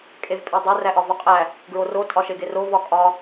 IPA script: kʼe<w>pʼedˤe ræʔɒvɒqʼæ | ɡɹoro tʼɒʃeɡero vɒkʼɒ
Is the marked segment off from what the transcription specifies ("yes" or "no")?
yes